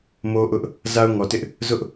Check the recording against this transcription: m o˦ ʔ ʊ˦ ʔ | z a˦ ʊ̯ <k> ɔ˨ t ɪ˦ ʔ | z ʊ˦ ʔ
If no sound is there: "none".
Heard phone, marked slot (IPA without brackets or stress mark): ŋ